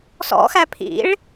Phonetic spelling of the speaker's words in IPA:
s ɔ̰ x æ pʰ ḭ ɭ

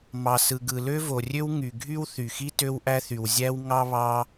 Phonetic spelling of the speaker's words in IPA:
m ɑ˩ s ɯ˩ ɡ ɯ˩ l ø˥ v o˩ rʲ ø˥ w ŋ y˩ ɡʱ y˥ w θ y˩ x i˥ t ø˥ w ʔ æ˥ θ y˩ w zʲ æ˥ w ŋ ɑ˥ β ɑ˥

